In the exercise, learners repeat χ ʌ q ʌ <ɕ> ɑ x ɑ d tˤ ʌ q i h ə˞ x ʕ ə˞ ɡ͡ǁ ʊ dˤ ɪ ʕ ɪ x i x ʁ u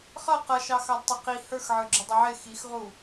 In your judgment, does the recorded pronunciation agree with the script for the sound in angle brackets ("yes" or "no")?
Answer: no